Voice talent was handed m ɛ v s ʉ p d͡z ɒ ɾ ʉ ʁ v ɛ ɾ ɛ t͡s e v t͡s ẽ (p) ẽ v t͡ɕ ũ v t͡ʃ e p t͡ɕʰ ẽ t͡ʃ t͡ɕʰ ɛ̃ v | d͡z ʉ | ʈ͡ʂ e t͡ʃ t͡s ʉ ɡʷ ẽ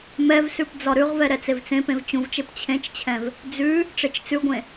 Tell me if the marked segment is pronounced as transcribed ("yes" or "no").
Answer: yes